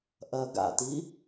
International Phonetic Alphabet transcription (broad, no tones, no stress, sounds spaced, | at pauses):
ʔ ɐ ɡ a̰ t i